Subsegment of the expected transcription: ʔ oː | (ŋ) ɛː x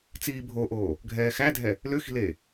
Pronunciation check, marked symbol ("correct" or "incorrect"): incorrect